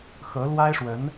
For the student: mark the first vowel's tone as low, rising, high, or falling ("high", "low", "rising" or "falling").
rising